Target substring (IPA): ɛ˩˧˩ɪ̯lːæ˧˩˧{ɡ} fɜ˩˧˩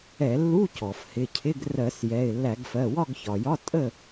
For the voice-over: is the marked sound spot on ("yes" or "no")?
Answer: yes